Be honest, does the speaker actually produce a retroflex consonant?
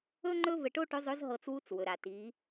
yes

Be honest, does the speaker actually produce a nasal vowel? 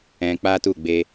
yes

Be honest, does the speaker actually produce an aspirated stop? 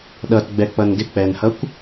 no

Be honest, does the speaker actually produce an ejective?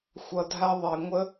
no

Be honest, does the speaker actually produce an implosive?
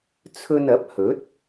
no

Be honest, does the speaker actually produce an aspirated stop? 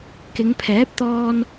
yes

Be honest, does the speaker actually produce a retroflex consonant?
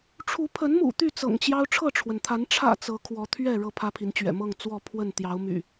yes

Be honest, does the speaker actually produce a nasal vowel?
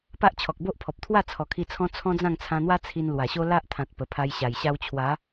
yes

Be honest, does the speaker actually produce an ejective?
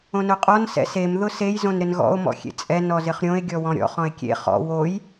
yes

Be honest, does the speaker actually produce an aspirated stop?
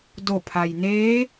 yes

